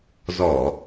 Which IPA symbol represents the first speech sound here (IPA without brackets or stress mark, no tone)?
z